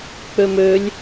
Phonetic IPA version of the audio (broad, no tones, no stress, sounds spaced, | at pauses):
k͡p ø m ø lʲ